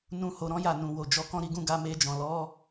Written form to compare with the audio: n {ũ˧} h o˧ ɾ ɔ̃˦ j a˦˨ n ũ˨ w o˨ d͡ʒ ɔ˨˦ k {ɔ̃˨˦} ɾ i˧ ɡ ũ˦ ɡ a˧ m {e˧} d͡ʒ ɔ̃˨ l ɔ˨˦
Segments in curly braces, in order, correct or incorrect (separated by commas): incorrect, incorrect, correct